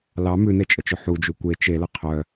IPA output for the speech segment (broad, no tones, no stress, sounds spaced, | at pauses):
l ɑ m ʉ n e t͡ʃʼ ə t͡ʃ ɵ ħ u d͡ʒ u kʷ e t͡ʃ e l ə qʰ œ